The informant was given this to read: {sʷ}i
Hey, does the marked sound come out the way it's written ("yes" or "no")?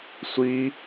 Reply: yes